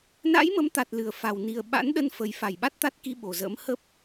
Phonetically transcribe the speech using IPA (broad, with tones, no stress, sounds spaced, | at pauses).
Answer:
n a̰˧˥ j m ə˨˦ m t̪ a˨˩ t̚ l ɨ˧˩ ə̯ f a˨˩ w n i˨˩ ə̯ ɓ a̰˧˥ n ɗ ə˧ n f ə˨˩ j f a˧˩ j ɓ a˦˥ t̚ t̪ a˦˥ t̚ k i˧ ɓ o˨˩ z ə̰ː˧˥ m h ə˦˥ p̚